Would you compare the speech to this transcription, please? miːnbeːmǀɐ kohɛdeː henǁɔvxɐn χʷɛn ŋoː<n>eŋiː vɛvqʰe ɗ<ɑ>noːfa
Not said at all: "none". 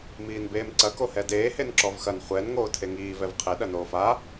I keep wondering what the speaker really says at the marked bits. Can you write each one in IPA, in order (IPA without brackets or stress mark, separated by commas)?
tʰ, ɐ